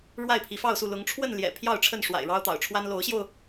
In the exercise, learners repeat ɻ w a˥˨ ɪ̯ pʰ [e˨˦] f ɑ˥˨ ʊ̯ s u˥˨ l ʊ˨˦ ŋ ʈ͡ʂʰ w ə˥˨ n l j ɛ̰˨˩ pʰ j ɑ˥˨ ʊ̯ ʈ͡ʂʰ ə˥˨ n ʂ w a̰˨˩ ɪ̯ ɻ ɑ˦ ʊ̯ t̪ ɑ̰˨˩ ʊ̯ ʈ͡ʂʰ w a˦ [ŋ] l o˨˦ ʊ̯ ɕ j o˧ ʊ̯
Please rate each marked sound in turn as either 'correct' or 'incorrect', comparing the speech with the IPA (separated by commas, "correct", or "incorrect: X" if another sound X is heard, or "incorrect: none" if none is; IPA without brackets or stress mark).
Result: incorrect: i˨˦, incorrect: n